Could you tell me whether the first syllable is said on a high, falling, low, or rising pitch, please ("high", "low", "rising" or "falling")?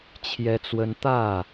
high